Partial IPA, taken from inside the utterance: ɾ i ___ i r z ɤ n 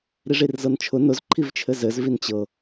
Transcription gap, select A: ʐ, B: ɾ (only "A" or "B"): A